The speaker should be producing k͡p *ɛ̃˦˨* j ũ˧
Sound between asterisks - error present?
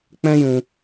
yes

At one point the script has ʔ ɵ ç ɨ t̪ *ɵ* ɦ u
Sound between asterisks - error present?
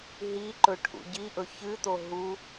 yes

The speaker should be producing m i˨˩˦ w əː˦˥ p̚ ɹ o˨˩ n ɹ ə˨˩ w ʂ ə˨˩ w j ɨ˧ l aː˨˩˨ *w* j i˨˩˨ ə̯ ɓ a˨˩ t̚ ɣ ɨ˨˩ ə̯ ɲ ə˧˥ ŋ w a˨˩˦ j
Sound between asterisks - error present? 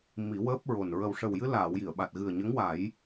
no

